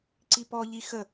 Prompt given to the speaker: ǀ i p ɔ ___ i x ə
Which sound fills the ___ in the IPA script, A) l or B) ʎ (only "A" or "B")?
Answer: B